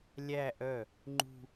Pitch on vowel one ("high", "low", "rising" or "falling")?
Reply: falling